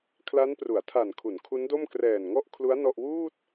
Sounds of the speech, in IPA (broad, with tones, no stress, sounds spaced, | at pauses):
kʰ l a˦˥ n p r u˩˦ a̯ tʰ a˨˩ n kʰ u˩˦ n kʰ u˦˥ n d o˥˩ m k r ɛː˨˩ n ŋ ɔ˥˩ ʔ kʰ l u˦˥ a̯ n ɔ˥˩ ʔ w uː˥˩ t̚